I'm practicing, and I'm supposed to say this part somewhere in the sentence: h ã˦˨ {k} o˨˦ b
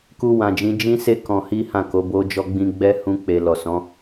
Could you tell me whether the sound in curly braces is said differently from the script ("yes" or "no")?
no